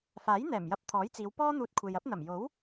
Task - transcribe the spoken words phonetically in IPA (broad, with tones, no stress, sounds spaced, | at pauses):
f aː˨˥ j n̪ ɛː˨˩ m j ɐ˧ p̚ t̪ʰ ɔː˨˥ j t͡s iː˨˧ w p ɔː˥ n̪ uː˧ t̚ kʷʰ e˨ j ɐ˨˥ p̚ n̪ ɐ˨˩ m j o˨˥ w